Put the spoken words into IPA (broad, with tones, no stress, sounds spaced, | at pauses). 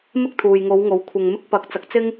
m ɪ˥ k̚ t̪ʰ uː˨ j ŋ o˨˧ w ŋ o˨˧ w kʷʰ ɐ˨ ŋ m ɪ˧ k̚ p ɐ˨˥ k̚ t͡s ɐ˨ k̚ t͡s ɪ˥ ŋ